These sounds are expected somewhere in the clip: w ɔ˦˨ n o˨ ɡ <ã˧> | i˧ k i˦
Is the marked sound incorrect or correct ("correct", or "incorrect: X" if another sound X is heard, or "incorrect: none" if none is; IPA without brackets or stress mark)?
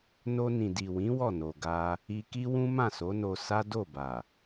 incorrect: a˧